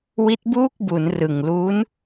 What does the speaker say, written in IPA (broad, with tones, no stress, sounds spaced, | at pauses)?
w i˦˥ t̚ b uː˥˩ k̚ b u˩˦ n r ɯ˨˩ ŋ l u˦˥ n